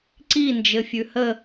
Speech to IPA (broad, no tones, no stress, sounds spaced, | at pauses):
ǀ i n d͡ʒ ɘ fʲ ʉ h ə